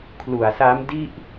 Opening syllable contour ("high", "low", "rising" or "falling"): low